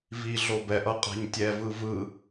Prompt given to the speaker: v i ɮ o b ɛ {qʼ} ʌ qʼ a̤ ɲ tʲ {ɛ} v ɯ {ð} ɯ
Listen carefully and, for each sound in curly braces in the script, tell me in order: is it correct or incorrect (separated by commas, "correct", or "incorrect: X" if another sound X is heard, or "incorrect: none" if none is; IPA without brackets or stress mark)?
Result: incorrect: ʔ, correct, incorrect: v